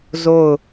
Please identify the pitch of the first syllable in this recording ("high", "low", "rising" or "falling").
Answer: falling